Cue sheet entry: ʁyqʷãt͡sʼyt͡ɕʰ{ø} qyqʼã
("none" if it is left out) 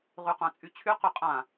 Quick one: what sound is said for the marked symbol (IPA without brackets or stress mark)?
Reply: y